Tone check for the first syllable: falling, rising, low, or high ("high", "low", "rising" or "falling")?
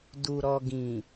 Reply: low